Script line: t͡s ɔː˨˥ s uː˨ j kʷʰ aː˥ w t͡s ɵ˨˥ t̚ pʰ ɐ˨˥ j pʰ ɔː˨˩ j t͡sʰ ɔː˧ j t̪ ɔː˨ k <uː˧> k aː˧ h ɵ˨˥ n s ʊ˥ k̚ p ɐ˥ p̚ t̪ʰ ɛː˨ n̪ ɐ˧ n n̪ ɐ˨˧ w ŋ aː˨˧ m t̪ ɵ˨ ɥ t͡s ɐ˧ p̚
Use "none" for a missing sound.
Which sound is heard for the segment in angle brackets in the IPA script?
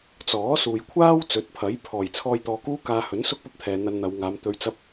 uː˥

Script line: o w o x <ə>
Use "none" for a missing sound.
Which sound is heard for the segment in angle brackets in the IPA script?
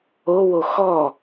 ɔ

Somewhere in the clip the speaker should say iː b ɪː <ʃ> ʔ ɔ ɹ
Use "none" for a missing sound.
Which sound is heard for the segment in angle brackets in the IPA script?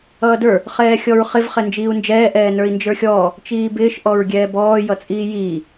ʃ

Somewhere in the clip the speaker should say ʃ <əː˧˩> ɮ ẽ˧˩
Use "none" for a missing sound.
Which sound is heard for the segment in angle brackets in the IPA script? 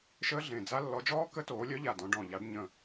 əː˦˥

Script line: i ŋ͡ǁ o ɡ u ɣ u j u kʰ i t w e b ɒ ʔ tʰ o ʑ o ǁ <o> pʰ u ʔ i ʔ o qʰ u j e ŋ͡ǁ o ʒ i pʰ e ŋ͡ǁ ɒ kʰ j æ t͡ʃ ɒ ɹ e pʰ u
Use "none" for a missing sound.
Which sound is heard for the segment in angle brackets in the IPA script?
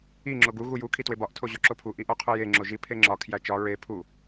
o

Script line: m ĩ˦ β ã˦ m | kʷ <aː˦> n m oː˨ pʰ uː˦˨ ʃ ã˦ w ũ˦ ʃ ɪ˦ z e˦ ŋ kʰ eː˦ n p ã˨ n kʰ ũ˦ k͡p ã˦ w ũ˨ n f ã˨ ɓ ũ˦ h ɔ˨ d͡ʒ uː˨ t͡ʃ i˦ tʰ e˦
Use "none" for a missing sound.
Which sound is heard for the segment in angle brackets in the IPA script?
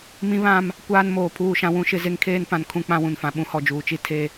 aː˦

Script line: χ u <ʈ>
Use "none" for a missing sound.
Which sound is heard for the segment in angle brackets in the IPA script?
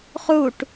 ʈ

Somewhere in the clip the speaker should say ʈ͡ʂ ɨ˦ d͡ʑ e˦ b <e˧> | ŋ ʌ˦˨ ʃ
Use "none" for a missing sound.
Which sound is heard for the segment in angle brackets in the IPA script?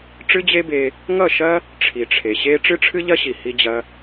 e˧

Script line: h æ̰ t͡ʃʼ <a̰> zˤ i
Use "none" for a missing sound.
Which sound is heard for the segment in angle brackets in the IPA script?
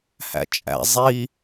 æ̰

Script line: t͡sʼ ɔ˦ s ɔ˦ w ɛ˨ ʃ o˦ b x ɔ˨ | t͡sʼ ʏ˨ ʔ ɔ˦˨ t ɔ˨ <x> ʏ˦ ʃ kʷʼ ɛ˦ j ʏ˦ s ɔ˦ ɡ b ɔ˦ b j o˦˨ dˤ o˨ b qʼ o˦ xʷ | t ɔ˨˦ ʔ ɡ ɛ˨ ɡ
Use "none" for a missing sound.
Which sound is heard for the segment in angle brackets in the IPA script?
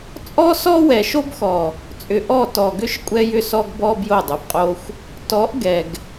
ɡ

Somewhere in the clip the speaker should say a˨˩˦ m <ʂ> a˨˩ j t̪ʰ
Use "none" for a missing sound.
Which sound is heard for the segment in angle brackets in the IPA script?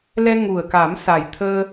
s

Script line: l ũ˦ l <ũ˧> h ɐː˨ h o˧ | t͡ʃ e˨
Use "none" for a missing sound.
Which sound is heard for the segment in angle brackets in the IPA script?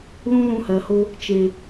ũ˧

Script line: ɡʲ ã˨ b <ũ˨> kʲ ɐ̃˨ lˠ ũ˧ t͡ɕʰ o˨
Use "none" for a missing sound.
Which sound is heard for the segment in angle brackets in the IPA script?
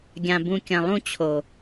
ũ˨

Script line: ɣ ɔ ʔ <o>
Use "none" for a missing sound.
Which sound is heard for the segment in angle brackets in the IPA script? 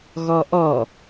ɔ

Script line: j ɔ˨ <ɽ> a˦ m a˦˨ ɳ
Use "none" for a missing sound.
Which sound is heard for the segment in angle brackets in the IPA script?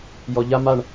ʎ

